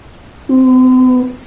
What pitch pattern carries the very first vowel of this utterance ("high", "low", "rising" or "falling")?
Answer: high